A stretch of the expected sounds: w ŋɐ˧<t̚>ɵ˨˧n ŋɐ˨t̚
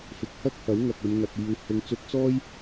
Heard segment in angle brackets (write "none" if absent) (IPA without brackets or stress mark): k̚